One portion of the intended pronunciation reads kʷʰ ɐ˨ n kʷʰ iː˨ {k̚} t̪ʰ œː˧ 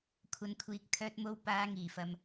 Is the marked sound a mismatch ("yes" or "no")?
no